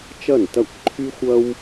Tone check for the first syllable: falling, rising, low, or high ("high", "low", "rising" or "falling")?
falling